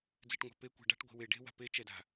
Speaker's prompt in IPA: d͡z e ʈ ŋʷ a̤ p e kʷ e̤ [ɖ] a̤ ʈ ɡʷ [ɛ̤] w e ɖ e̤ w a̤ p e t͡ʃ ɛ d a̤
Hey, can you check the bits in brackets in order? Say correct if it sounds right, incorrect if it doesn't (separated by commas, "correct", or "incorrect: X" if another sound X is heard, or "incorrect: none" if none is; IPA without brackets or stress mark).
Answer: correct, incorrect: e̤